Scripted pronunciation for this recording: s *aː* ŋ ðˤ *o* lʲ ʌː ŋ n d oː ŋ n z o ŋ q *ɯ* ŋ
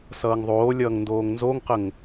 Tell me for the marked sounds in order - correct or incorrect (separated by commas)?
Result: incorrect, incorrect, incorrect